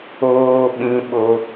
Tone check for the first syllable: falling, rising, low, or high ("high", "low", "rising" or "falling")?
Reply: high